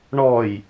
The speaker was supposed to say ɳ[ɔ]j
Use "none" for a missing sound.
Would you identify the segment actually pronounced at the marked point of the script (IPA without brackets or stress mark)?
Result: ɔ